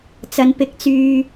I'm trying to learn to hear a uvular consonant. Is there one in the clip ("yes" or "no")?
no